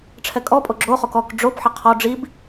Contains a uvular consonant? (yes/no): yes